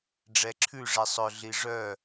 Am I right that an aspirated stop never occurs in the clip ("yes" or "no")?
no